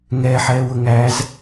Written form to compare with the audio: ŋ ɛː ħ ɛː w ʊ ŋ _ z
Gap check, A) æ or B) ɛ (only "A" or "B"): A